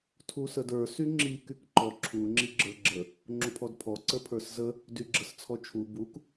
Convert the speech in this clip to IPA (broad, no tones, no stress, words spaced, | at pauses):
tʰusədə˞ syŋ͡ǁi kykǃɔ ǁʰu ŋ͡ǁiɡ͡ǁə˞ɡ͡ǁə | ŋ͡ǁupʰɔdpʰɔ ǀəpʰə˞szə | dyɡ͡ǁəst͡sʰɔt͡ʃʰu buk